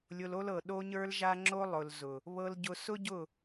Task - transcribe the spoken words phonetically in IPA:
lʲ ʊ˧ l o˦ l ɤ˨ ɗ o˧ ɲ ə˞˧ l ʒ a˧ ŋ͡ǁ o˧ lˠ ʊ˨ l z ʊ˨ | β ɤ˧ l ɟ ʊ˧ s ʊ˦ ɟ ʊ˦˨

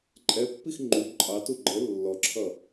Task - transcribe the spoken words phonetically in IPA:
ǃʼ ɛ pː i x ŋ͡ǃ u ǃʼ ɑ t u ɡ͡ǃ ə lː ɔ ǁʰ ʌ

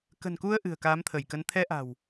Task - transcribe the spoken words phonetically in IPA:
k ə̤˨˩ n k u˧ ə̯ ʔ ɨ̤˨˩ ə̯ k aː˨˦ m t̪ʰ ə˧˩ j k ə˨˦ n t̪ʰ ɛ˧ ʔ a̤˨˩ w

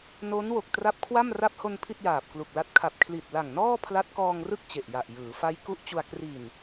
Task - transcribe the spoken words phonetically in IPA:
n o˦˥ n w o˨˩ k̚ t r a˦˥ p̚ kʰ w a˥˩ m r a˥˩ p̚ h o˧ n pʰ i˥˩ t̚ j aː˨˩ p̚ k l u˨˩ k̚ l a˦˥ t̚ kʰ a˨˩ p̚ kʰ l i˨˩ t̚ l a˨˩ ŋ n ɔː˥˩ pʰ l a˦˥ t̚ k ɔː˧ ŋ r ɯ˥˩ k̚ t͡ɕ e˨˩ ʔ j a˨˩ ʔ j ɯː˩˦ f a˦˥ j k u˦˥ ʔ t͡ɕ u˧ a̯ k r i˨˩ n

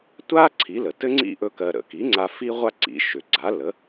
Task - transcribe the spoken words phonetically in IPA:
tʷ a˥ ǀʰ i˩˥ l ə˩ t ɘ˥ ŋ͡ǀ ḭ˥ ʔ ɵ˥ k ɜ˧ ɾ ə̰˩ k i˩˥ ŋ͡ǀ a˧ f i˥ ʁʷ a˥ ǀ ḭ˩˥ ʃ ʏ˩ ɡ͡ǀ a˩˥ l ə˩˥

